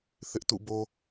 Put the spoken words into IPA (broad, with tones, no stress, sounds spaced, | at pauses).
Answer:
θ ɪ˦ ʔ t ṵ˦˨ b o˦